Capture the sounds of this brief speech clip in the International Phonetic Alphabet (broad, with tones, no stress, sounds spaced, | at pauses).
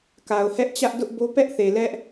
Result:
k a˨ ʊ̯ h ɛ˦ ʔ t͡ɕ ä˦ ʔ d ʊ˦ ʔ b o˦ p ɛ˦ ʔ θ e˨ l ɛ˦ ʔ